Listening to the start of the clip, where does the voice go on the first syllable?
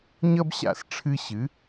high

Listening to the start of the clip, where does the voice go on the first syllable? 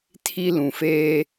high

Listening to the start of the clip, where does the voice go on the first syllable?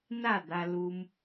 falling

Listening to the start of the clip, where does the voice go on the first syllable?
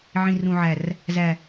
high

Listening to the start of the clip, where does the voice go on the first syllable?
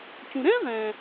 low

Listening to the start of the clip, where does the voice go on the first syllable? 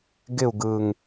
falling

